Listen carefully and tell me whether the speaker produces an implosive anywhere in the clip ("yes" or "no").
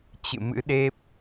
yes